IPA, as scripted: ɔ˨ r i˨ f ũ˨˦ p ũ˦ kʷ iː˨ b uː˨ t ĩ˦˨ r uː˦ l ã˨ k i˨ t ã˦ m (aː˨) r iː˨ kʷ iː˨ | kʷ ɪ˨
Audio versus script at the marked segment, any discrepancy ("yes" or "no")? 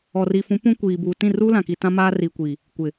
yes